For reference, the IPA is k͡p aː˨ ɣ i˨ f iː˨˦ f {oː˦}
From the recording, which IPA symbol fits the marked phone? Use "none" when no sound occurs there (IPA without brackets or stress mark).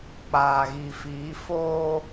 oː˦